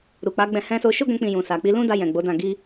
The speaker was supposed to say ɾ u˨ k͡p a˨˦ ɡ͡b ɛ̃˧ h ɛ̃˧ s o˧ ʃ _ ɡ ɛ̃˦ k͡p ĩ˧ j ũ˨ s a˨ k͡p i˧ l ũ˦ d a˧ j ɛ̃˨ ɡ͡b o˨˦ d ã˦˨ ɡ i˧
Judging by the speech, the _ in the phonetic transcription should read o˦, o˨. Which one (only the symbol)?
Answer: o˦